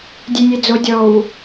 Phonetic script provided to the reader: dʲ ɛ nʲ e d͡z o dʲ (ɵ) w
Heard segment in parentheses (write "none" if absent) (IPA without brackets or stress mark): ɔ